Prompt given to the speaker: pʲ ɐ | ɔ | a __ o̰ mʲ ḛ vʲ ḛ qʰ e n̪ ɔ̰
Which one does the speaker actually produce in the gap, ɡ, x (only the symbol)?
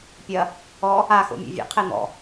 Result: x